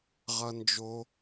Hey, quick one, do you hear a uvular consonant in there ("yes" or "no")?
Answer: yes